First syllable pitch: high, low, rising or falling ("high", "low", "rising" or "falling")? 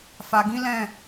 low